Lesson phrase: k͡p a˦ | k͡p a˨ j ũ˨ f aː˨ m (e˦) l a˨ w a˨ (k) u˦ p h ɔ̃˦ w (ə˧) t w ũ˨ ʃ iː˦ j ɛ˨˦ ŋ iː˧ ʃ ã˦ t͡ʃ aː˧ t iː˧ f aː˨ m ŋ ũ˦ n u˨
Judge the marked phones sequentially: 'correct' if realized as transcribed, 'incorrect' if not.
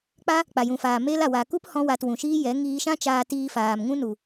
correct, correct, incorrect: a˧

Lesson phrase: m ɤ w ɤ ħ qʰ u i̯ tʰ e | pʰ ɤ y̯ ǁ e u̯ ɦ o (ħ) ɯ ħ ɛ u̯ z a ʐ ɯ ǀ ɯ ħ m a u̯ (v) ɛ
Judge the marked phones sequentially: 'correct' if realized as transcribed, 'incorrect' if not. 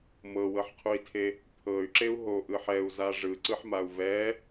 incorrect: ʔ, correct

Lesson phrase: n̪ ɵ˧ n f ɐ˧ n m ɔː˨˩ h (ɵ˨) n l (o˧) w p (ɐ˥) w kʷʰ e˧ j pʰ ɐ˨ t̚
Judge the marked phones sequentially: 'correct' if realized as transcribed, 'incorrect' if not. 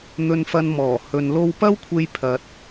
correct, correct, correct

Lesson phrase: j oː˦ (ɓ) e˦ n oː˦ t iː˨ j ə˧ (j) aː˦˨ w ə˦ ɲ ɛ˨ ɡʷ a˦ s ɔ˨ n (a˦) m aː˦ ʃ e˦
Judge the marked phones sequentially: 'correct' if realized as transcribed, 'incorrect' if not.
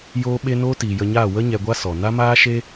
correct, incorrect: ɲ, correct

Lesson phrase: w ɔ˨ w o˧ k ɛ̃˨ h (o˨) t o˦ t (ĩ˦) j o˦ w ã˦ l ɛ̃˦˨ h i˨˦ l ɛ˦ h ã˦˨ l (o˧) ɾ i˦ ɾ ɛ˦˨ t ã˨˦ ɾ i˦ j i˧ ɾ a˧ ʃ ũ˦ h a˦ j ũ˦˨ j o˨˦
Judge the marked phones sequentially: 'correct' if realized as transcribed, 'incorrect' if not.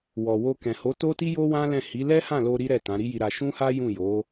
incorrect: o˨˦, incorrect: i˦, correct

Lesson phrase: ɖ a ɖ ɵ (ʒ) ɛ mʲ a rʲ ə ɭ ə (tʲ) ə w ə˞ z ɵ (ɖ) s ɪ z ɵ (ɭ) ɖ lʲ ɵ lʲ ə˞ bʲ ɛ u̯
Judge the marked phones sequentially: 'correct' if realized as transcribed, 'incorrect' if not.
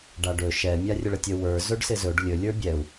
incorrect: ʃ, correct, correct, incorrect: none

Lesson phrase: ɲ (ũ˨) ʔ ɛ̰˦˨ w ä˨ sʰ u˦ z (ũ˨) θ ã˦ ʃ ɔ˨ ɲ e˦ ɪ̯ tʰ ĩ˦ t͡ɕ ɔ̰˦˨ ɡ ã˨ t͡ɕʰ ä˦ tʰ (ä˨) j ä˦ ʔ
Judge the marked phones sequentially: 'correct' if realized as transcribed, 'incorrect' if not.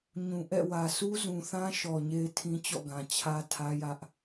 correct, correct, incorrect: ä˦

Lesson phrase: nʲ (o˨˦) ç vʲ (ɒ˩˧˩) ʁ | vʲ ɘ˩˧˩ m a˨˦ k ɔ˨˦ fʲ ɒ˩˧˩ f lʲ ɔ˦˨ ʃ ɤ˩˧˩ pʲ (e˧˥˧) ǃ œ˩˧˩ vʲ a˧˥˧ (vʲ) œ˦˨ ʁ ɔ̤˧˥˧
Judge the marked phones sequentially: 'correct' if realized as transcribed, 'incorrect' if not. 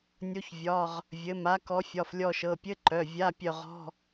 correct, correct, incorrect: ɘ˧˥˧, incorrect: pʲ

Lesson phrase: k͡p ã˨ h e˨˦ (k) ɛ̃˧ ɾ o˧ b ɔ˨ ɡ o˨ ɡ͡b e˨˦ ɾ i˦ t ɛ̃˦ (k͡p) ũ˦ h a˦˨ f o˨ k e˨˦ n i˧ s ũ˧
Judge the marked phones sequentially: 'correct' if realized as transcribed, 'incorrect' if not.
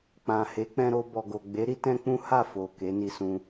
incorrect: k͡p, correct

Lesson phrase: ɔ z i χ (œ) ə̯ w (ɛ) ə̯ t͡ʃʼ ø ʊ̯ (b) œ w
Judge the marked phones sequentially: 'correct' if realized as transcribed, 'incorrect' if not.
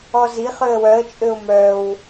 incorrect: ø, incorrect: œ, incorrect: m

